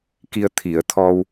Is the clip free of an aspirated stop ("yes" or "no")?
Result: no